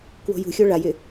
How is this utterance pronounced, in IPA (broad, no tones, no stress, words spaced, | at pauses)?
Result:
kwo̤jṳxʲo ɭajɪ